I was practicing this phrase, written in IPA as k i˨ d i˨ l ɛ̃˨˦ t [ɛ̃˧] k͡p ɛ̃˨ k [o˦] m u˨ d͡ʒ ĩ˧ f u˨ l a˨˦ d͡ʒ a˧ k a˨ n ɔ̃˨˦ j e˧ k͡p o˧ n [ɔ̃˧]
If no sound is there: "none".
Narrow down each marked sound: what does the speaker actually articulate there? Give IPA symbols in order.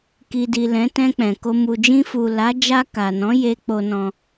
ɛ̃˧, o˧, ɔ̃˧

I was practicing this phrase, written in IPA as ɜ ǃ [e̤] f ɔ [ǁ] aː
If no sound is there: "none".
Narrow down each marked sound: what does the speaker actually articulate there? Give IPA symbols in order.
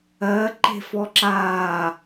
e̤, ǁ

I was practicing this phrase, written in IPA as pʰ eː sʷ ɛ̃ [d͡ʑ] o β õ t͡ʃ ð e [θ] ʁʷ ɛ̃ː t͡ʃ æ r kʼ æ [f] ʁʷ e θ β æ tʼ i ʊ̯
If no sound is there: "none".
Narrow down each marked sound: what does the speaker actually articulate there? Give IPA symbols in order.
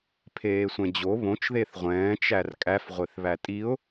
d͡ʑ, θ, f

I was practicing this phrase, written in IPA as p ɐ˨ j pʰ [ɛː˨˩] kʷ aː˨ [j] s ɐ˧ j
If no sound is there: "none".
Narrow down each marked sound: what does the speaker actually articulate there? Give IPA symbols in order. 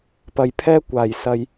ɛː˧, j

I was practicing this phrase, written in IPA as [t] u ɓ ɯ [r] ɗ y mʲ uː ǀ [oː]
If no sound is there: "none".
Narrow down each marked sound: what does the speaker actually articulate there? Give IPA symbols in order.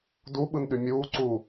d, n, uː

